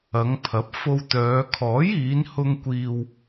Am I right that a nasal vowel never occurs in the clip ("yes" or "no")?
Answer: yes